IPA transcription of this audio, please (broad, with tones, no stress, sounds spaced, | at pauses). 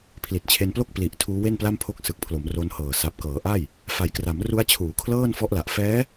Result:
pʰ l i˨˩ t̚ t͡ɕʰ e˧ n p l o˥˩ k̚ p l i˨˩ ʔ tʰ uː˦˥ w e˥˩ n p l a˥˩ m pʰ o˥˩ k̚ s ɯ˨˩ k̚ pʰ l o˩˦ m r o˧ n h ɤː˨˩ s a˨˩ p̚ k ɤː˩˦ ʔ a˥˩ j | f a˩˦ j k r a˩˦ m r u˦˥ a̯ t͡ɕʰ uː˩˦ kʰ l ɤː˥˩ n f ɔ˦˥ ʔ l a˨˩ ʔ f ɛː˦˥